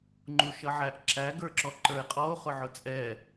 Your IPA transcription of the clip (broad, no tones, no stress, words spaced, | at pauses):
ŋ͡ǃuʃʌʕæʔǁæ ɡə˞ǁɔǃə˞e̯qʼɔo̯ χʊʕʊt͡sʼɛ